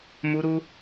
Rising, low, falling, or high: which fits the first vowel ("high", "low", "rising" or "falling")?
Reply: high